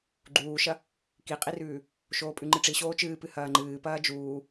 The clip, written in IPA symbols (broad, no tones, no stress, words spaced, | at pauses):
ɡ͡ǃuːʃɐ | kiqʼirʉː | ʃoːpʼʉŋ͡ǃɨʈ͡ʂi ɕoːt͡ʃɨːpɨ hɐːŋ͡ǃɨːpɐː d͡ʒuː